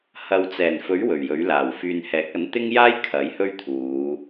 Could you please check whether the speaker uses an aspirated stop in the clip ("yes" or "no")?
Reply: yes